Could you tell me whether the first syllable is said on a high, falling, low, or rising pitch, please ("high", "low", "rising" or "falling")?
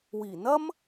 low